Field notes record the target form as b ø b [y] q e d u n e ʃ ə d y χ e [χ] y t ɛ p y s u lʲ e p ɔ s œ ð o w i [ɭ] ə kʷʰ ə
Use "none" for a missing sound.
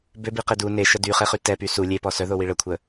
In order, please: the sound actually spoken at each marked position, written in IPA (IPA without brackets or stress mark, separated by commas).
i, χ, ɭ